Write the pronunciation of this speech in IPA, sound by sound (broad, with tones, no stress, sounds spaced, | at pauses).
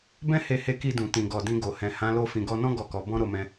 b ɛ̃˦ h e˧ h e˧ k i˧ d ũ˨ t ĩ˨ ɡ ɔ˨ d ĩ˧ ɡ o˨ h ɛ̃˨ h ã˨˦ l o˧ f ĩ˨ ɡ ɔ˧ n ɔ̃˦ ɡ ɔ˦˨ k ɔ˨˦ b ɔ̃˦ ɾ o˧ m ɛ̃˧